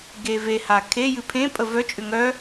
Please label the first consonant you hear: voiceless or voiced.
voiced